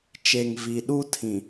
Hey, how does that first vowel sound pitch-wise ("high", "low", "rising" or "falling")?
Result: low